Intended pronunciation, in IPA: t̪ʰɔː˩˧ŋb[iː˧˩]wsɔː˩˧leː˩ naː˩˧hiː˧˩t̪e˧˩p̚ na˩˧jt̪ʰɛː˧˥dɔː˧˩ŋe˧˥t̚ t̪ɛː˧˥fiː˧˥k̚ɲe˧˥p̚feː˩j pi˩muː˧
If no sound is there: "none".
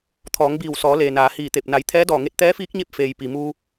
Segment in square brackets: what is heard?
iː˧˩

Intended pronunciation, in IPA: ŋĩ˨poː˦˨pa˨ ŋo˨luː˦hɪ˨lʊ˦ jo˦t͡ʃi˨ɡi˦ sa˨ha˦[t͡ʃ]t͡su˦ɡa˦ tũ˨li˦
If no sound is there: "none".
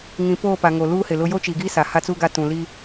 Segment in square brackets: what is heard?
none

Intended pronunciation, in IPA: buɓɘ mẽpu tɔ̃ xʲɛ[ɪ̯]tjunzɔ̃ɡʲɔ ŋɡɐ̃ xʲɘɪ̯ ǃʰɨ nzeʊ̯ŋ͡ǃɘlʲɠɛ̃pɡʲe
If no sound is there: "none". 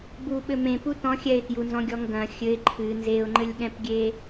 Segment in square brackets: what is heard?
ɪ̯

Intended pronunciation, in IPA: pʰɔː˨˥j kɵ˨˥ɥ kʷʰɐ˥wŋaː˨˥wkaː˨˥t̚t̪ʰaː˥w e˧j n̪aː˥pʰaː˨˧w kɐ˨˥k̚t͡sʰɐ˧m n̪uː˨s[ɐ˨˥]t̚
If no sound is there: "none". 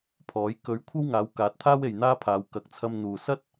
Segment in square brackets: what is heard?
ɐ˥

